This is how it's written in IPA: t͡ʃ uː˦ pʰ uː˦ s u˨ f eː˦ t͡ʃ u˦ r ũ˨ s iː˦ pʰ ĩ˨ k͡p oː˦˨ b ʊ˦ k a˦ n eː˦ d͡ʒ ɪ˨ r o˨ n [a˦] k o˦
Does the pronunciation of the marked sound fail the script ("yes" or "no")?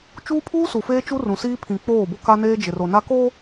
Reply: no